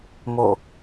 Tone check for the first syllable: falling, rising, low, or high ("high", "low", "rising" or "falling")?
falling